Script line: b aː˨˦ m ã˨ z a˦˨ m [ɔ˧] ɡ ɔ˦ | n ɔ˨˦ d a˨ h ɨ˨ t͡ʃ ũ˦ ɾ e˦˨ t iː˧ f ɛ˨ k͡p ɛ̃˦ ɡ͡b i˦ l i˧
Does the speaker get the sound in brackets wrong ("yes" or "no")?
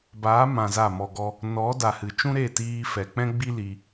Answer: no